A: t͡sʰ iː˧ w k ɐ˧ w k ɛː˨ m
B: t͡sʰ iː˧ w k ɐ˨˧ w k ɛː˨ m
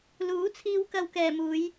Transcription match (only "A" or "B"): A